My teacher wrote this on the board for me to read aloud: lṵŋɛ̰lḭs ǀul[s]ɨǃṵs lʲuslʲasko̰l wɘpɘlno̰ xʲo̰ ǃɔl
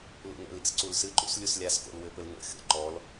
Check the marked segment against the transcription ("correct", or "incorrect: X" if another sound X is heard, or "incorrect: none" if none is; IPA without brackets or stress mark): correct